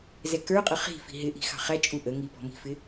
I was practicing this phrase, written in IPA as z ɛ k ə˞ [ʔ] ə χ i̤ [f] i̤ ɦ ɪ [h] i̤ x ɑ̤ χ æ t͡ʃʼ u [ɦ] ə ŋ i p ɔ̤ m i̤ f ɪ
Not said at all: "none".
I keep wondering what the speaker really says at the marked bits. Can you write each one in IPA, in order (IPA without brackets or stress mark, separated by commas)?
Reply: qʼ, f, ʔ, ʔ